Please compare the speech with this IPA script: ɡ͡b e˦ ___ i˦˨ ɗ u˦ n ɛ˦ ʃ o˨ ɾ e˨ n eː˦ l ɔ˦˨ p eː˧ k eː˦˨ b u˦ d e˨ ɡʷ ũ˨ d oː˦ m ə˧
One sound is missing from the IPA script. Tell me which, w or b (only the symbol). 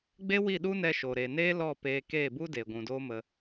w